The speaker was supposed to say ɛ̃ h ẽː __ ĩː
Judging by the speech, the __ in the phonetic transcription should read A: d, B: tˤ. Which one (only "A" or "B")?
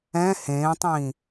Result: B